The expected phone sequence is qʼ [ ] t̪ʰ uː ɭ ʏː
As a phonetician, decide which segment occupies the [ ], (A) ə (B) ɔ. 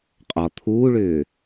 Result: B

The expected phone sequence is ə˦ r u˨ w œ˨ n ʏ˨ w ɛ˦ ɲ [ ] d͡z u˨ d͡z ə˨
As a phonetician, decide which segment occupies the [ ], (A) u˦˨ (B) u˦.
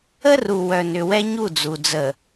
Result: A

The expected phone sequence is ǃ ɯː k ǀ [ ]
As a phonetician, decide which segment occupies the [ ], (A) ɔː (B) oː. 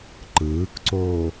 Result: B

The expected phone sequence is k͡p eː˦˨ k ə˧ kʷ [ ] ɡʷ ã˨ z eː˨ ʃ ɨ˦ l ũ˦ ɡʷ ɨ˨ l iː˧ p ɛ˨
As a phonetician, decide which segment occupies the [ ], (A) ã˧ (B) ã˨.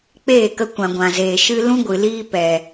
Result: B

